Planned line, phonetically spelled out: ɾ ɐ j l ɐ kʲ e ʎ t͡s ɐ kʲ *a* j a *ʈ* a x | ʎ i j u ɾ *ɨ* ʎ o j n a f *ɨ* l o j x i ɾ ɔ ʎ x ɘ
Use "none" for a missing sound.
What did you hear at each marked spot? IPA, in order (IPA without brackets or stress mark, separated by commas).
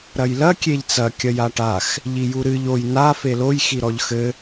ɐ, ʈ, ɨ, e